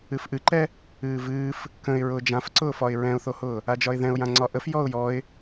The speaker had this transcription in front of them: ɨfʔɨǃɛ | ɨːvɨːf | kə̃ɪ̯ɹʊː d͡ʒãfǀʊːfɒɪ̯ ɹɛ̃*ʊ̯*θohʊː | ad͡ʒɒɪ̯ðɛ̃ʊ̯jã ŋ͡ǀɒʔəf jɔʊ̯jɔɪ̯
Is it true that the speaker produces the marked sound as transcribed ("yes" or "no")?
yes